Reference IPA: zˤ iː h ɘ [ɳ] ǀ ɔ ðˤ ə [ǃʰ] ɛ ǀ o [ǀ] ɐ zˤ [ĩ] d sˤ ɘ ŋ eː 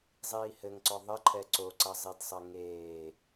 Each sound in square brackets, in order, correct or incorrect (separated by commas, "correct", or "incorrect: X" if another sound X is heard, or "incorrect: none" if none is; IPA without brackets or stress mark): incorrect: ŋ, correct, correct, incorrect: i